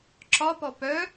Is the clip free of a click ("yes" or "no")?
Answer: no